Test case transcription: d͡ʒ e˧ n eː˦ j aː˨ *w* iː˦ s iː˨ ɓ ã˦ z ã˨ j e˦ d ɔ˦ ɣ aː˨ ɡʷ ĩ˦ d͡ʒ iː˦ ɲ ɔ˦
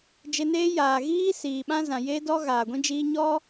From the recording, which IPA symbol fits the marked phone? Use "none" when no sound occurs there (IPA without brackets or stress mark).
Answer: ɣ